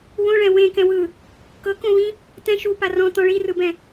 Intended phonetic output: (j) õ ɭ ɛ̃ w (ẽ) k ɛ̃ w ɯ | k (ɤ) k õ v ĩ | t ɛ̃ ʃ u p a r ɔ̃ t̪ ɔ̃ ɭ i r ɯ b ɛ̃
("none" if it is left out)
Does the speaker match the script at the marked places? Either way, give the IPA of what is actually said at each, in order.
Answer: w, ẽ, ɤ

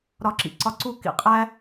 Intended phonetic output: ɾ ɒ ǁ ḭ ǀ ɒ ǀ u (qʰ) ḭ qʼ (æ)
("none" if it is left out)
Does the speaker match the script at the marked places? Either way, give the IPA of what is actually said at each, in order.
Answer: k, æ

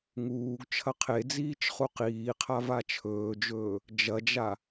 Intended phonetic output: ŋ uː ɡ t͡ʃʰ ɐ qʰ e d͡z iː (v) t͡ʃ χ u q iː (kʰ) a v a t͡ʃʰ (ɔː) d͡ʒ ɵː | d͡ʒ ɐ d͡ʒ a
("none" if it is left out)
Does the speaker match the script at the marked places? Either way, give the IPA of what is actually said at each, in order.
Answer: none, qʰ, ɵː

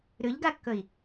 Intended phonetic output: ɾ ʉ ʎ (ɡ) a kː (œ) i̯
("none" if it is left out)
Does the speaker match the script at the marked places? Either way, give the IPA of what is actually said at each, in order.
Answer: ɡ, ɵ

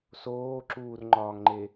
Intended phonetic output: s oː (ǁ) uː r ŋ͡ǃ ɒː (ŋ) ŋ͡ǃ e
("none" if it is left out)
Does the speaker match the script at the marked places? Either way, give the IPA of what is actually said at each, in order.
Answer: ǁ, ŋ

